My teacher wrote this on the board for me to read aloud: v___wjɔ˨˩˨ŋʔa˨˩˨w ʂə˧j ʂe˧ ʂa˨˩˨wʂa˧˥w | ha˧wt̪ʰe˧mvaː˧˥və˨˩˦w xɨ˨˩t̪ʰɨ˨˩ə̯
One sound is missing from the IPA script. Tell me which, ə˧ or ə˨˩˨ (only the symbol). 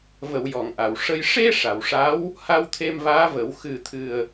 ə˨˩˨